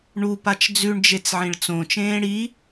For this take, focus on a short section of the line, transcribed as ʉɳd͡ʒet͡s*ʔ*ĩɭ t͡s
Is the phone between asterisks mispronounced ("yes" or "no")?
yes